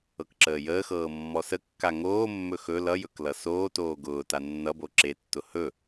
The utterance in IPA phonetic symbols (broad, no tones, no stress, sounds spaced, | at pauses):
ɤ k ǁ əː j əː x ɤː mː ɔ s ə kː a ŋ oː mː ɵ x ɵ l ʌ j ɵ k l ʌ s oː t oː ɡ ʊː t a nː ʌ b o ǁ e tː ʊ h ɵ